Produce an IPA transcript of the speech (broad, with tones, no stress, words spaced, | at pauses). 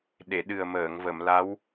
ɗe˨˩˨ɗɨ˨˩ə̯məː˨˩˨ŋ və˨˩˨mla˧˥w